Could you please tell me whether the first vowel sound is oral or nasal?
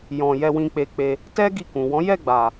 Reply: nasal